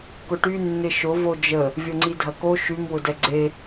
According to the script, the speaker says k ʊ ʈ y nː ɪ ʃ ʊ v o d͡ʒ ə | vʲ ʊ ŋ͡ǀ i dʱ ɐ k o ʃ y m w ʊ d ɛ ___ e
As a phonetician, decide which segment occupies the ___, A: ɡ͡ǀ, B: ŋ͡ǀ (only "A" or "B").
A